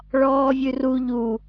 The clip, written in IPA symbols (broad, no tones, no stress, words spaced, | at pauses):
ɭɔːvʲʉru ʎu